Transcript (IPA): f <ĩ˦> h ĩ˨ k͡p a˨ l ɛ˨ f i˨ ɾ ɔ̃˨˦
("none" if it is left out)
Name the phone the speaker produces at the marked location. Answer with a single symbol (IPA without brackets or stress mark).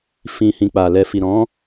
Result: ĩ˨